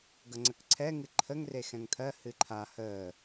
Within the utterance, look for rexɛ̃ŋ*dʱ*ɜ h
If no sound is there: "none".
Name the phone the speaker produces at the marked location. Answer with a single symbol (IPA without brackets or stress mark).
t̪ʰ